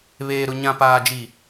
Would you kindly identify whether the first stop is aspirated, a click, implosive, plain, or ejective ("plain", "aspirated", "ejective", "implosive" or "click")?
plain